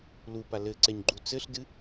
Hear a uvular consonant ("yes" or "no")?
no